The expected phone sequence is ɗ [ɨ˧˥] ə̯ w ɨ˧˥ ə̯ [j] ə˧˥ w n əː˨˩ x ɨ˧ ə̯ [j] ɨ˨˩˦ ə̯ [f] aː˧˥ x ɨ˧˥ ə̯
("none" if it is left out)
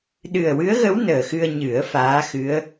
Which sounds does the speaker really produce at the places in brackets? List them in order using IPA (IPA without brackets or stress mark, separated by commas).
ɨ˨˩, ɣ, ɲ, f